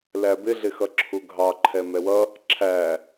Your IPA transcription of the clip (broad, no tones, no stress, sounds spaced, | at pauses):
l æ b ɪ ɮ ɪ x ʌ ǁʰ u ɡʱ ɑ ǃʰ ɛ m ɛ w ʌ | ǁʰ æ